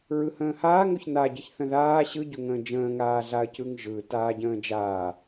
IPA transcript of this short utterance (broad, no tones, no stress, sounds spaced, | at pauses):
ɹ ɯ h ə̃ː h aː ŋ o ç n a ɟ ə ç θ ə̃ ð aː ɕ ɯ ɟ ʊ ŋ ə̃ː d͡ʒ ə̃ː ŋ aː ɮ a ɐ̯ c ɯ ŋ ʒ ɯ t aː ɟ ə̃ː d͡ʒ aː